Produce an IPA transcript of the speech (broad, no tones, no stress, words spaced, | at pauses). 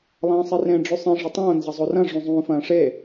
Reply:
lˠɐ̃ːsˤirẽ ɖ͡ʐʉsˤĩ ʐetˤõː nzɐzˤorɐ̃ ʐũzˤũːfɐ̃ːʂe